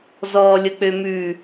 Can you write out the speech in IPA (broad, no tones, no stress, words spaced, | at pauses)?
zɔːlʲək͡pømʉ